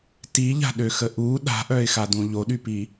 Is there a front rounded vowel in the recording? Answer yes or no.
yes